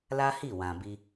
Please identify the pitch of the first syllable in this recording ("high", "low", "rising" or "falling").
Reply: high